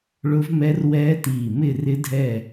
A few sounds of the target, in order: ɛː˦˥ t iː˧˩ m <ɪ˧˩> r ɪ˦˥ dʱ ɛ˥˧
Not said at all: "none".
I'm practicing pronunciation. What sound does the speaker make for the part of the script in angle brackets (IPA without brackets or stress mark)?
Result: ɪ˥˧